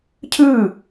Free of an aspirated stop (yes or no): no